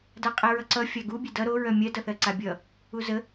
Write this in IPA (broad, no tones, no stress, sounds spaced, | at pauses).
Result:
d a qʼ e ɹ ʌ ǀ ʌ fʲ a ɡ u bʲ e d ʌ ɾ o ɹ œ mʲ ɜ d ʌ θ ɜ ǀ a bʲ ʌ | u z ə